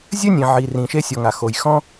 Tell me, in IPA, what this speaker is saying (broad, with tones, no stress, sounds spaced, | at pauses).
zʲ ɘ˥ nʲ ẽ˩ ʕ i˩ r ĩ˩ ʃ e˥ sʲ ɔ˩ ŋ a˩ x o˩ j x ɔ̃˥